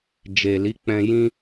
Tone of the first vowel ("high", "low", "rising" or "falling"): low